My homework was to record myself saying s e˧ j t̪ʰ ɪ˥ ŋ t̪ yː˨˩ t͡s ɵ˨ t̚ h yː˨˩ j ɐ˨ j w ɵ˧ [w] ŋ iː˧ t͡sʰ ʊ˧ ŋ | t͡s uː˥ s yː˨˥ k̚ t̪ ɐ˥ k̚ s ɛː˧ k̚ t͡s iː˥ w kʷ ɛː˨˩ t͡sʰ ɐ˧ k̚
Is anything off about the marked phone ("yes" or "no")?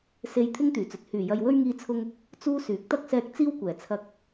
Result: yes